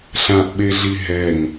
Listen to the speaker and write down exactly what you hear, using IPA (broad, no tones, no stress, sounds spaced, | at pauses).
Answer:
ɬ ã ʔ ɓ e ɮ i ɦ ɛ ŋ